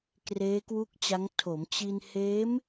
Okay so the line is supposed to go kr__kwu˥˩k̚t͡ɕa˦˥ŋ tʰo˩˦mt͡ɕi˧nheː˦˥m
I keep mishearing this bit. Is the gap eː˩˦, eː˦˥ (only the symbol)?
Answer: eː˦˥